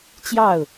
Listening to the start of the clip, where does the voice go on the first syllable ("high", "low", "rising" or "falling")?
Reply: falling